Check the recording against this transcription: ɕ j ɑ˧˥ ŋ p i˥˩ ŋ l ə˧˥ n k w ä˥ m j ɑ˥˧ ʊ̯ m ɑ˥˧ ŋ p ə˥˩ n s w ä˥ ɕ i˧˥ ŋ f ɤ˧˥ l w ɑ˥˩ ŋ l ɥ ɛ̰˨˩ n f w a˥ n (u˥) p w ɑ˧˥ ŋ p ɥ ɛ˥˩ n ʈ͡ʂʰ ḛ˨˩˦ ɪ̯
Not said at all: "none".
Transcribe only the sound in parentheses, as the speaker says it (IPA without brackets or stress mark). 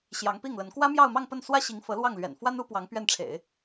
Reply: u˥